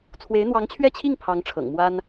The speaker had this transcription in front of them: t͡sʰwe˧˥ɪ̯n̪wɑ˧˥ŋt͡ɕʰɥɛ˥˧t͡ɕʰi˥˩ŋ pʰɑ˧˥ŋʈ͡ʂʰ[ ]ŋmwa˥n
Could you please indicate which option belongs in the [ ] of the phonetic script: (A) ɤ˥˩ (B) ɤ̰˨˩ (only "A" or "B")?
B